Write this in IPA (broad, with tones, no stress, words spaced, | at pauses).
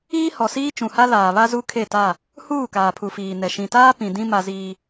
iː˦hɔ˨siː˦ t͡ʃũ˨ha˦laː˨ βa˦zu˦ kʰe˦˨ta˦˨ | huː˦˨ kaː˨pʰu˨fiː˨nɛ˨ ʃĩ˨taː˦ pĩ˨dĩ˦ ma˦ziː˦